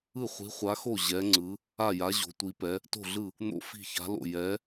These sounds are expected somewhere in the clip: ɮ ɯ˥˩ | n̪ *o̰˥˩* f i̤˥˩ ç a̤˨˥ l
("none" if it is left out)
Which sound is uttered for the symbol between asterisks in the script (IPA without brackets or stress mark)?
o̰˥˩